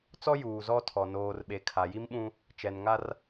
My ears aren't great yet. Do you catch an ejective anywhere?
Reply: no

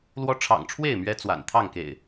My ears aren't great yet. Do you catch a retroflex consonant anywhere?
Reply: yes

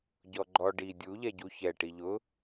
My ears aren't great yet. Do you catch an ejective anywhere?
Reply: no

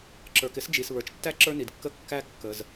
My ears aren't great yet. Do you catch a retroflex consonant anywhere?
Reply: no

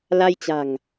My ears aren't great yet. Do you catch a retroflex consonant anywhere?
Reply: no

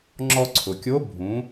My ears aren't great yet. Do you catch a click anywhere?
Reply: yes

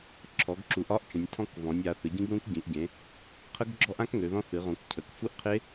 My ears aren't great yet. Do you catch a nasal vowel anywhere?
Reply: yes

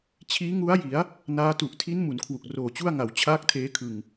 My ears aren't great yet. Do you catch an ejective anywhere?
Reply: no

